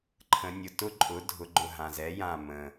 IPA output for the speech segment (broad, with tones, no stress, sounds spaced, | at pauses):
ǃʰ ə̃˩˧ nʲ ʊ˩ t ʊ˥ ǃʼ ʊ˩˥ dʱ ʊ˩˧ ɡ͡ǃ ʊ˧˩ ɦ ã˩ z ɛ˩˥ j ã˧˩ m ə̃˩